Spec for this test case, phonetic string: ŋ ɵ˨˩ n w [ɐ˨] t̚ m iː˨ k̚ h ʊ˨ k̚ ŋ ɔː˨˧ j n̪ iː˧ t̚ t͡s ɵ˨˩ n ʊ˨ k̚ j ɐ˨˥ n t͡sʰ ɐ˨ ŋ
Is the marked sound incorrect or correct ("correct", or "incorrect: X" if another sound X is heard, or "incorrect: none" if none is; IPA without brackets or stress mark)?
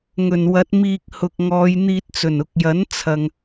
incorrect: ɐ˨˥